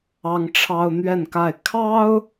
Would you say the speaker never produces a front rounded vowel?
yes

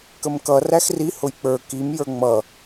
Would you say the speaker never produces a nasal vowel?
yes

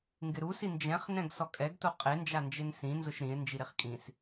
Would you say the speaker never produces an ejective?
no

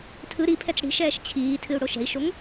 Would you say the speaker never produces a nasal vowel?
yes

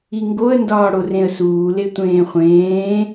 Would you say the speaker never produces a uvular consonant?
no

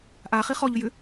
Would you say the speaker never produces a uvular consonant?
no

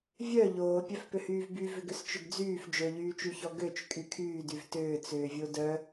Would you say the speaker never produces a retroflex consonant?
yes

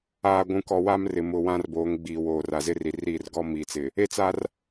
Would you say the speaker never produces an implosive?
yes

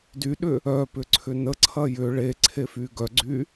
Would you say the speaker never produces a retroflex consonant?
no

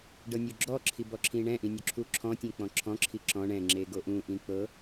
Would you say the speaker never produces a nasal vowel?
no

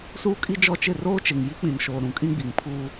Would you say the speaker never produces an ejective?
no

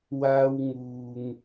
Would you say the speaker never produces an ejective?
yes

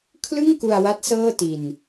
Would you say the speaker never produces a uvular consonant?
yes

